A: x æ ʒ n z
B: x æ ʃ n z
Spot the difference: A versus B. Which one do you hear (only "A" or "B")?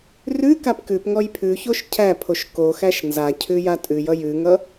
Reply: B